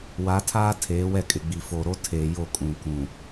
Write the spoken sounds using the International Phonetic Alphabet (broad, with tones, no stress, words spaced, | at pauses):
wa˨˦tʰaː˦ tʰeː˨˦wɛ˦˨kʼɪ˨ɡ͡bi˨ fo˨ɾo˦ tʰeː˨ jo˦˨kʼũ˨ kũ˨